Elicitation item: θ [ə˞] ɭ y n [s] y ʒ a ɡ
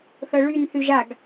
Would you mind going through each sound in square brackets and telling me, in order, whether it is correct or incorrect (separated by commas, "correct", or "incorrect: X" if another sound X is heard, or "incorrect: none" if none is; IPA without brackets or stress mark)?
incorrect: ɤ, incorrect: θ